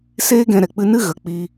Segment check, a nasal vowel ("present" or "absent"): present